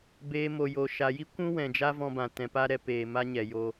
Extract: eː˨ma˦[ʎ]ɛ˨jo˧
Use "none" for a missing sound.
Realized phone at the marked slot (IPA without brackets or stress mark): ɲ